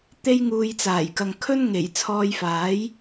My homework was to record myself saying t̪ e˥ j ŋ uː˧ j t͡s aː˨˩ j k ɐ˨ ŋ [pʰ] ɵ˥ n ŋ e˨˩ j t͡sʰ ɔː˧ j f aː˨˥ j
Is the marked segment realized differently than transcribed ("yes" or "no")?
yes